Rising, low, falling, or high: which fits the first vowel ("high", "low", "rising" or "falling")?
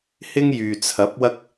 high